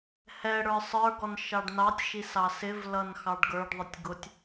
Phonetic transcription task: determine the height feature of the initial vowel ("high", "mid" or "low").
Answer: mid